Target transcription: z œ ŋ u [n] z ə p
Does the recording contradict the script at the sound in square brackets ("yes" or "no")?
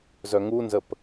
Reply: no